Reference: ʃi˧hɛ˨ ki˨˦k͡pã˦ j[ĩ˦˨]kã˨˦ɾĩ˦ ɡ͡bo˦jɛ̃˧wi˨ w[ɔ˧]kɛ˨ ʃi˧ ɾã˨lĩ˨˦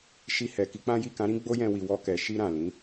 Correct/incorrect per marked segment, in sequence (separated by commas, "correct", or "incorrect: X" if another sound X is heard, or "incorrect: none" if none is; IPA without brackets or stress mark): incorrect: i˦˨, correct